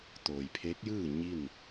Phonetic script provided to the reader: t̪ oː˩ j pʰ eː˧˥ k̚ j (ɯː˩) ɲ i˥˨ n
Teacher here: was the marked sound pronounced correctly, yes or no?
no